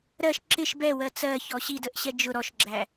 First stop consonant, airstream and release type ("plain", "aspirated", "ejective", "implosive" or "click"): click